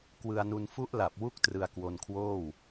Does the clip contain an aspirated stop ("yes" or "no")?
yes